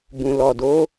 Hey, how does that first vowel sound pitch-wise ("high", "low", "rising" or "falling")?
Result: low